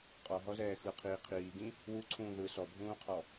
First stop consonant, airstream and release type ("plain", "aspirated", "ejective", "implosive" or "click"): ejective